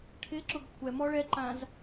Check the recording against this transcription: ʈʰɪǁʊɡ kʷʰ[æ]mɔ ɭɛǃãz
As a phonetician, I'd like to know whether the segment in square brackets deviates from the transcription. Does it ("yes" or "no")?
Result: yes